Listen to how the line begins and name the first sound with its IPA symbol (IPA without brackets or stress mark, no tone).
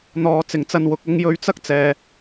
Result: n̪